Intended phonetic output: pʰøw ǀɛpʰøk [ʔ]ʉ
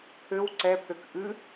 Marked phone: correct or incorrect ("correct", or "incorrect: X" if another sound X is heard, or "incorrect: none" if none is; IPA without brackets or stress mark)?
correct